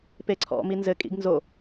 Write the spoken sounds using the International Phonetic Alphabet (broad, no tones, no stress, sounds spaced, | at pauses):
p e ǀʰ ɔ̰ m i n z ɘ kʼ ḭ ɡ n z o